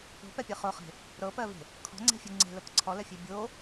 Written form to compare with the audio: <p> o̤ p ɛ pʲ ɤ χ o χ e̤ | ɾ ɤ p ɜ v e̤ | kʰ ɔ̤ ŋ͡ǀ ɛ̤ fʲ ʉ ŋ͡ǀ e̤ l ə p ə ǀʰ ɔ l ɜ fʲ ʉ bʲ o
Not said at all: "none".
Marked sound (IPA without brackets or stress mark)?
p